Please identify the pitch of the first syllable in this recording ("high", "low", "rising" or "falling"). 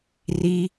high